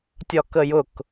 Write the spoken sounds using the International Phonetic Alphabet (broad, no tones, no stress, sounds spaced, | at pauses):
tʲ ɒ k ə j ʊ k